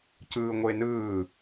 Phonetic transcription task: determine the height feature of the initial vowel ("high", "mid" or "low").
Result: high